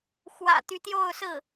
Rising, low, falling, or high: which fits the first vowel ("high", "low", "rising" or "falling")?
low